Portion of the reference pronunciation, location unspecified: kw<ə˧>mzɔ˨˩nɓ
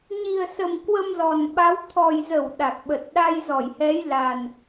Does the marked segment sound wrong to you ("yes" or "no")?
no